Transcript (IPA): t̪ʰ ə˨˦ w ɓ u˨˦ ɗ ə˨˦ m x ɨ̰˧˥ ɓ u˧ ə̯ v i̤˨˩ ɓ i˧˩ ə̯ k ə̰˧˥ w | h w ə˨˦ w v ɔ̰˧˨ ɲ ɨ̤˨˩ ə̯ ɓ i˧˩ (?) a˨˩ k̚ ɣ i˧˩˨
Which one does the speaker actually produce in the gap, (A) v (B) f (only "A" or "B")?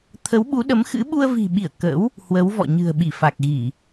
B